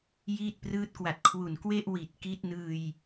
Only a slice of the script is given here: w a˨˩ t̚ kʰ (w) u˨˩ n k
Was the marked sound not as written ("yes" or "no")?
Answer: no